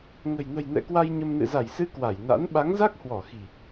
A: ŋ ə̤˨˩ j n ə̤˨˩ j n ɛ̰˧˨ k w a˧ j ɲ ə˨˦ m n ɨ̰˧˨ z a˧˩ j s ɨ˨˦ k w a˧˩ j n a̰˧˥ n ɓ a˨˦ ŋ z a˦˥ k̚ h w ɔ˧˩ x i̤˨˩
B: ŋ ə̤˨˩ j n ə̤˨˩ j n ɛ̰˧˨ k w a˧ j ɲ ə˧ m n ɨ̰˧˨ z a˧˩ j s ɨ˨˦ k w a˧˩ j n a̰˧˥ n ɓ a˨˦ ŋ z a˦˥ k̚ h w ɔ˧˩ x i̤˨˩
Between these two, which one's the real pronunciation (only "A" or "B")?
B